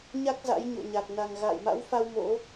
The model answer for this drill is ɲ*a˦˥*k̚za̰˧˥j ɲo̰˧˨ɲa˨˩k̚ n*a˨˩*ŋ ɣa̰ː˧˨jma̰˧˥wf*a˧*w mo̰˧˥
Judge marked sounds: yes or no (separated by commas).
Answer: yes, yes, yes